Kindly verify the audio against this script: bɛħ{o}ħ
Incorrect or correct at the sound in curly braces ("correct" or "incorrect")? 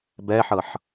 incorrect